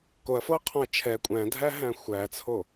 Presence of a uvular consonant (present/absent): present